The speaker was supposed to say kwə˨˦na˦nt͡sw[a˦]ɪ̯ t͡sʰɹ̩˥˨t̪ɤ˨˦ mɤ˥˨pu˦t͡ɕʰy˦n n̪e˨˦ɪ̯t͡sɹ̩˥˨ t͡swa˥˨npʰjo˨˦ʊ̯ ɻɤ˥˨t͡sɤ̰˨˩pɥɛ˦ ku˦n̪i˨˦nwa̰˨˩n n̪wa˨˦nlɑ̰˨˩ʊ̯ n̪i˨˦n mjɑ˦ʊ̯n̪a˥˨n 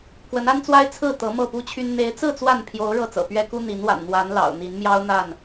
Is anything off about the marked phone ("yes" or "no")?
no